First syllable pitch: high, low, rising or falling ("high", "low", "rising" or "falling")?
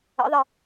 rising